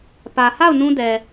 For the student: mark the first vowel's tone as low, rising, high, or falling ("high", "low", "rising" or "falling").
low